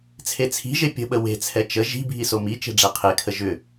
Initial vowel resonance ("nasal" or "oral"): oral